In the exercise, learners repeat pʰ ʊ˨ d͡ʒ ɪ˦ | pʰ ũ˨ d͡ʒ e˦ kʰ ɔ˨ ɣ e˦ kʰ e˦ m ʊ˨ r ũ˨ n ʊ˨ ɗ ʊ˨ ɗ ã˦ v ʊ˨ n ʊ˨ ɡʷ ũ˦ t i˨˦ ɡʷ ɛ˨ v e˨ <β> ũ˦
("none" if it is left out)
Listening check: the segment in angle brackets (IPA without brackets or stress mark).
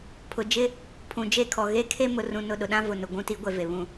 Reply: β